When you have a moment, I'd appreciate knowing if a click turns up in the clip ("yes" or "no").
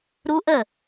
no